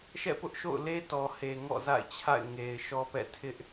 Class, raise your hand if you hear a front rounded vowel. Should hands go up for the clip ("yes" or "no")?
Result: no